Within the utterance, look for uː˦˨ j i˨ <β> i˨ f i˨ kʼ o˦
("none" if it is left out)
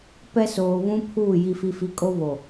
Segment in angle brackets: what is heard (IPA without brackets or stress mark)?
f